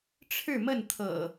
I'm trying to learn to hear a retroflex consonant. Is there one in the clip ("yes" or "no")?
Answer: yes